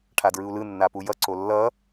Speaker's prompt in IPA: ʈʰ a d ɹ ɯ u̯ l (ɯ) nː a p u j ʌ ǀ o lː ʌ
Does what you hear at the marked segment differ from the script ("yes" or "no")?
no